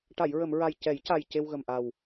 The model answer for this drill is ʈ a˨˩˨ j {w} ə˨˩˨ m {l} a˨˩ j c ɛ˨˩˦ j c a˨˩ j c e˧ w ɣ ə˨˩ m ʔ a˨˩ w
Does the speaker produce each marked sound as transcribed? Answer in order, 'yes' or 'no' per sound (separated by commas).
no, no